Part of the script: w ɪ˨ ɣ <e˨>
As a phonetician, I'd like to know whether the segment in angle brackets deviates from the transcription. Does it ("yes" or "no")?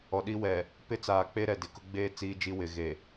no